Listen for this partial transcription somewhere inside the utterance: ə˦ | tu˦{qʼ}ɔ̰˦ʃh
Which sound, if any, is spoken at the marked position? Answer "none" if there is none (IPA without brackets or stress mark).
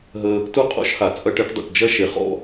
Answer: qʼ